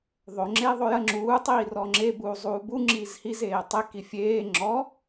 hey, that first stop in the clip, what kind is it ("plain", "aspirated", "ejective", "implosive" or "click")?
click